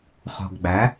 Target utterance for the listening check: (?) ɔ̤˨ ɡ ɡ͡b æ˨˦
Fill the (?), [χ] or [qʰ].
χ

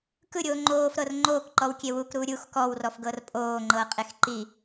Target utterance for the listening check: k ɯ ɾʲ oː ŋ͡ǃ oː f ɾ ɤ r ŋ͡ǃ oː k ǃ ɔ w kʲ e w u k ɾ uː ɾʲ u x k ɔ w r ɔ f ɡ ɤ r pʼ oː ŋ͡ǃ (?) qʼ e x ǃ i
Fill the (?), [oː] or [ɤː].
ɤː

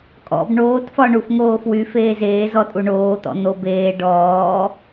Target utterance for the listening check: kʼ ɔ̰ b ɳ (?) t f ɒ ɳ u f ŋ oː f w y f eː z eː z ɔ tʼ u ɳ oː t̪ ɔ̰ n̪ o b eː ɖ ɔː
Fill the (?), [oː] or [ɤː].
oː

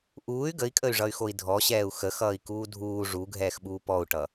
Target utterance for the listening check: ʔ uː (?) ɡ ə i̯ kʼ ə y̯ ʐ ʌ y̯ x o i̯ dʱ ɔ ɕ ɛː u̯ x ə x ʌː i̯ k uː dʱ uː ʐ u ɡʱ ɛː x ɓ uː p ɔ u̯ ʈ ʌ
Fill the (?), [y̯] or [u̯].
y̯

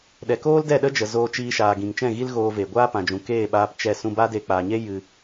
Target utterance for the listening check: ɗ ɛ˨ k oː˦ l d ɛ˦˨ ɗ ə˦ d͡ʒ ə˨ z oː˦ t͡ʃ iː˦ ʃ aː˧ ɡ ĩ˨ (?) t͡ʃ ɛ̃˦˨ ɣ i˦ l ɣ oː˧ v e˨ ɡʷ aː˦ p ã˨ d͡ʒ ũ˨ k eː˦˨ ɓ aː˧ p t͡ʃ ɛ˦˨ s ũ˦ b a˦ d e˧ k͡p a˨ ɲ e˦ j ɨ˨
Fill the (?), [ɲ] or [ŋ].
ŋ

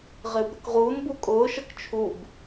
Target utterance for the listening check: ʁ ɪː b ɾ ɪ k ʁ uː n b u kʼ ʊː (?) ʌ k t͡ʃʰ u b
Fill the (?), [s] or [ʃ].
ʃ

